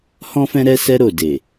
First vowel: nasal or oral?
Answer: nasal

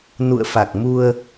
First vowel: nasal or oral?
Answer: oral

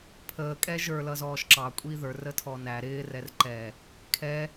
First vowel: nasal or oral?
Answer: oral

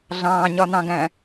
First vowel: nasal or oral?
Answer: nasal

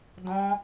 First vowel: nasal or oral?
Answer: nasal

